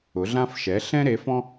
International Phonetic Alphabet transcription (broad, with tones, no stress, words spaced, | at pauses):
ʊ˩˥ɮã˥f ʃɛ˩˥ɬɛ̃˥ɾe˩˥fɔ̃˥